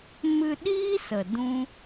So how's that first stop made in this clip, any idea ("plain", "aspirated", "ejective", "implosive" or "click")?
implosive